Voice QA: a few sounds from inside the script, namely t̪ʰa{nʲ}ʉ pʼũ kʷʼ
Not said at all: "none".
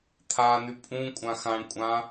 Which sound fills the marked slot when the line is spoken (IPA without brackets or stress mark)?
n